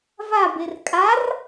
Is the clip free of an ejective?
no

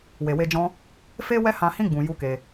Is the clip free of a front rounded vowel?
yes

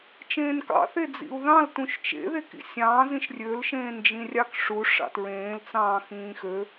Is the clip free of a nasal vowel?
no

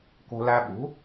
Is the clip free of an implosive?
no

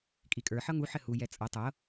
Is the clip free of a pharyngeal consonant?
no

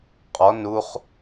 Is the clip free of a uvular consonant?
no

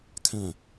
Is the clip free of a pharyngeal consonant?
yes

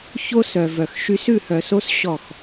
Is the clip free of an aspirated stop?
yes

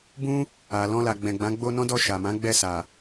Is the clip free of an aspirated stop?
yes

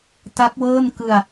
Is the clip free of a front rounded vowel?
yes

